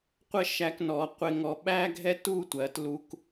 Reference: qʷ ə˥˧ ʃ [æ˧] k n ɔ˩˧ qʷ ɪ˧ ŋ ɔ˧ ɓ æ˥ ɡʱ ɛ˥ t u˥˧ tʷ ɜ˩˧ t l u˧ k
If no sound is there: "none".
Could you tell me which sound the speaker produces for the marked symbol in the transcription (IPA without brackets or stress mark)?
æ˧